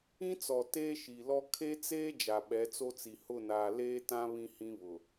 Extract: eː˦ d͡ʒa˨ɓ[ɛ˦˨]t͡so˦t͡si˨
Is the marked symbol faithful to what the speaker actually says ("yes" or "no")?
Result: no